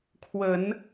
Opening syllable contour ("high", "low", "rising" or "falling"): low